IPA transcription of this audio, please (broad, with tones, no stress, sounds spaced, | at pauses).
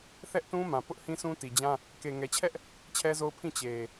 θ ɛ˦ ʔ t ũ˦ m ã˨ p ʊ˦ ʔ h ĩ˦ s ũ˦ t i˨ d͡ʑ ã˦ | k e˨ ŋ ɛ˨ t͡ɕʰ ɛ˦ ʔ | t͡ɕʰ ɛ˦ z o˦ ʊ̯ pʰ ĩ˦˨ t͡ɕ e˨